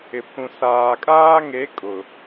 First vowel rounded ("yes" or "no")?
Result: no